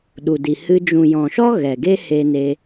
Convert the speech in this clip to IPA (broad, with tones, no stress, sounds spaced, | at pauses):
ɗ u˨ d i˨ h ɨ˧ d͡ʒ ũ˨ j ɔ̃˨ ʃ ɔ˦ ɣ ɛ˨ ɡ e˦ h e˧ n e˧